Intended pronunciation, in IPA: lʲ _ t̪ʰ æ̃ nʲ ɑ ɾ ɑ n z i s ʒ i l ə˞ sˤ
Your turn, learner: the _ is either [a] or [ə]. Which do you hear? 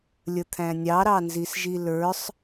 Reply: ə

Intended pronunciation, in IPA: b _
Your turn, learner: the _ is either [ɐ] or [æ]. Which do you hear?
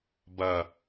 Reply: ɐ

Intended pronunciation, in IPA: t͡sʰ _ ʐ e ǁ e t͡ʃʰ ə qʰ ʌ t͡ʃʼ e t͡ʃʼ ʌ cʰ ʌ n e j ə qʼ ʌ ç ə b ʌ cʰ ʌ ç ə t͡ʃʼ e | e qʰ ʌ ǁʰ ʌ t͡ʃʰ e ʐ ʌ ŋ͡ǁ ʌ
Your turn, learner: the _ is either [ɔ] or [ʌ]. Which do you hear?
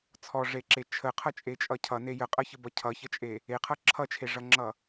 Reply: ɔ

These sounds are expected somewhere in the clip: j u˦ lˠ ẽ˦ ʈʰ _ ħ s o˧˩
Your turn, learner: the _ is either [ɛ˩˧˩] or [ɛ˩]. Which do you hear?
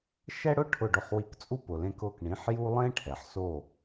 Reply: ɛ˩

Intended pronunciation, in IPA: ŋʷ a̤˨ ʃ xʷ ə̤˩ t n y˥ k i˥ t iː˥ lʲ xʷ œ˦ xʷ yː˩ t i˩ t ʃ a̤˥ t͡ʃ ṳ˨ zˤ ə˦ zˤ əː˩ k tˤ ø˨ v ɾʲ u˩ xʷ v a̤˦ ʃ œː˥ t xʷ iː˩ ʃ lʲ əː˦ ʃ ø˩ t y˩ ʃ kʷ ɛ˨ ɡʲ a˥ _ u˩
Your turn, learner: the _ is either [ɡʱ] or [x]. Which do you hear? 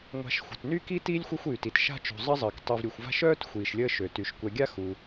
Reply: x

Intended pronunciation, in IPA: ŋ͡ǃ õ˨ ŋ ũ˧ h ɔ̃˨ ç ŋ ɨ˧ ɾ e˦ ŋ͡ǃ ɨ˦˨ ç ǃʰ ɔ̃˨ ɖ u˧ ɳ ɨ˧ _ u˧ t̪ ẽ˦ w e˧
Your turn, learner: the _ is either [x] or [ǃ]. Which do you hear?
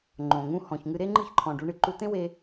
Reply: ǃ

